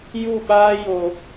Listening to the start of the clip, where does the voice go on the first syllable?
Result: falling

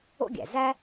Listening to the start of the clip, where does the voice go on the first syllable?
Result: high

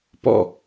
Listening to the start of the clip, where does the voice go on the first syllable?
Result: falling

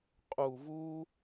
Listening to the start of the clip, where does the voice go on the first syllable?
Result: low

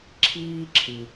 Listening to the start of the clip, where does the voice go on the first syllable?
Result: high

